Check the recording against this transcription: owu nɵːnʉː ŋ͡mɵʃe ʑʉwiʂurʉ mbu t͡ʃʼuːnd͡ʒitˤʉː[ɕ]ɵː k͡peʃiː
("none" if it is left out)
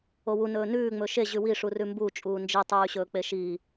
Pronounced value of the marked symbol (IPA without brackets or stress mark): ɕ